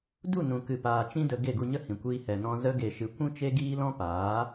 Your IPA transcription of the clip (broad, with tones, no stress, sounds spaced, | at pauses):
d u˦˨ n ũ˨ k ɨ˨ p aː˨ t͡ʃ ĩ˦ d ə˧ ɡ e˦˨ ɡ u˧ ɲ ə˦ h ĩ˨ kʷ iː˧ h ɛ˨ n ɔ̃˧ z ə˧ ɡ e˨ ʃ ɨ˨ kʷ ũ˦ t͡ʃ e˦ ɡ iː˦ l ɔ̃˦ p aː˨˦